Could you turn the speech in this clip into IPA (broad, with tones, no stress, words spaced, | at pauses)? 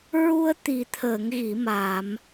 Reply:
ɹu˧ə̯t̪i˨˩t̪ʰəː˨˩˨ŋ ɣi˨˩˨ma˨˩˨m